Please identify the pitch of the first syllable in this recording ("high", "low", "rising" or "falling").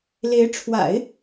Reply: rising